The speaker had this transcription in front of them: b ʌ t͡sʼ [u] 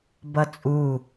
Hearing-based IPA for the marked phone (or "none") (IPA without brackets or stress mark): u